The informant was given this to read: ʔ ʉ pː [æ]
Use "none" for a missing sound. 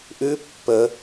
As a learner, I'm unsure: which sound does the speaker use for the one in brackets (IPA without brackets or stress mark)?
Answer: ə